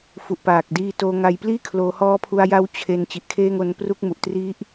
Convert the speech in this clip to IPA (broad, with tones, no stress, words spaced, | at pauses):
fu˨˩ʔpaː˨˩k̚diː˧toː˧ ŋa˧jpliː˥˩kʰloː˧ hɔː˦˥pʰu˧a̯ja˦˥w t͡ɕʰe˧n t͡ɕi˨˩ʔkʰeː˦˥ŋo˧n pru˦˥k̚mu˨˩ʔtri˦˥ʔ